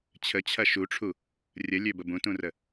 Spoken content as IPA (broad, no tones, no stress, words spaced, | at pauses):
t͡ɕʰət͡ɕʰɐ ʃuʈ͡ʂʰu | rʲəlʲøbə bũtũrə